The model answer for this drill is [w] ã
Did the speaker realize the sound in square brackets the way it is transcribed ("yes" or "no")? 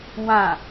yes